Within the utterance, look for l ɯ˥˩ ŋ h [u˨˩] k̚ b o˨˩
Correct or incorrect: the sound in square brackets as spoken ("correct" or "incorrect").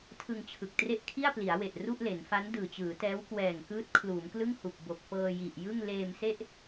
correct